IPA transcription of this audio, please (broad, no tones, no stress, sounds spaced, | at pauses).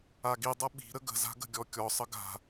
a ɡ i dˤ ʌ ɓ i̤ ɾ ə ɡ ə̤ z a̤ ɡ ə̤ ɡʲ ɔ kʲ ɔ sˤ ə ɡ a̤